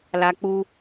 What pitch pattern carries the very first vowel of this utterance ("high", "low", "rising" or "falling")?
high